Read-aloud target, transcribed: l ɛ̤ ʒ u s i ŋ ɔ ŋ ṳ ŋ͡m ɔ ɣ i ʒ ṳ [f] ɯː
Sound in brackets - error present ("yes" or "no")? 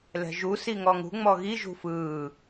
no